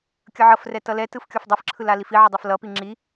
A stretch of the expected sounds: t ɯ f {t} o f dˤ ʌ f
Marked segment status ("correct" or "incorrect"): incorrect